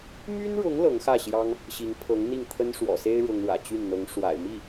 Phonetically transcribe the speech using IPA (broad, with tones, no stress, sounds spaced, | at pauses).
m y˥ n ɻ ʊ˧˥ ŋ l ɤ˧˥ ŋ x ä˥˩ ɕ j ɑ˥ ŋ | ɕ i˧˥ ŋ pʰ ɤ˧˥ ŋ n̪ i˥˩ ŋ t̪ʰ ə˥ n ʂ w ɔ̰˨˩ s e˥ ɪ̯ ɻ ʊ˥ ŋ ɻ ä̰˨˩ t͡ɕ y˥˩ n n̪ ɤ˧˥ ŋ ʂ w a̰˨˩ ɪ̯ m i˥˩